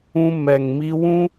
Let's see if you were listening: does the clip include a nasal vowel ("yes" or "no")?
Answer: yes